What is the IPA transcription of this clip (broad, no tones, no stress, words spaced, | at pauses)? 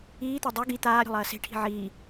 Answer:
iːt̪a dˤɵ ɡi t̪aːɾʲo̤lˠɐː se̤ʈʰi̤ ʕiː